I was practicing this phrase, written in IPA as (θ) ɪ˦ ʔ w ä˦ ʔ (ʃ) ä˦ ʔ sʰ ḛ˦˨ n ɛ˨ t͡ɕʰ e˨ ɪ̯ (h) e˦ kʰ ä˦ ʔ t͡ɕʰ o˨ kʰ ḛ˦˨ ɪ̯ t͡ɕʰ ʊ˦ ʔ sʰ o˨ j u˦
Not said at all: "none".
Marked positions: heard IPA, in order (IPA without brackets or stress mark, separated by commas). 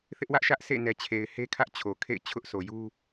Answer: θ, ʃ, h